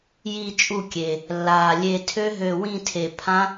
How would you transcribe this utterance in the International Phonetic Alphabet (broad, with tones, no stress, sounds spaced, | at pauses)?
j i˧˩ t͡ʃʼ u˧˩ kʲ e˩ | lː aː˩ lʲ e˧˩ tʰ ø˦˥ ɦ ø˧˩ w ĩ˥˨ tʰ e˧˩ pʰ ã˦˥